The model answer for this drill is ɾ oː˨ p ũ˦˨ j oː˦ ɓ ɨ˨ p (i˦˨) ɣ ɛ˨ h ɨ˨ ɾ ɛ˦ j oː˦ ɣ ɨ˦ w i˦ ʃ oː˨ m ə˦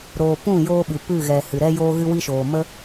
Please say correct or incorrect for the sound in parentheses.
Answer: incorrect